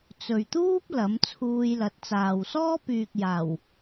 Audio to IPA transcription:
t͡s ɵ˨ ɥ t̪ uː˥ p̚ l ɐ˨˥ m t͡sʰ uː˧ j l ɐ˨˥ t̚ t͡s aː˨ w s ɔː˥ p yː˨ k̚ j aː˨˩ w

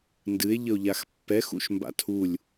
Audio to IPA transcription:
n d ɨ e̯ ʎ ə o̯ ʎ a x pː ɛ x ṵ ʃ m b a̰ tʰ u lʲ

